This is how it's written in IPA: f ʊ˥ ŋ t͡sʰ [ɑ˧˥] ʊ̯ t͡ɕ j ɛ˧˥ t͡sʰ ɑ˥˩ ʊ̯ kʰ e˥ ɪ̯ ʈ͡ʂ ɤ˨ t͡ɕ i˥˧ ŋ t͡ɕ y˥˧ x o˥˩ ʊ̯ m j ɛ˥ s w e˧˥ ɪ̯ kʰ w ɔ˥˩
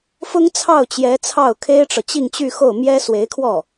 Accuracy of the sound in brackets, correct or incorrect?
incorrect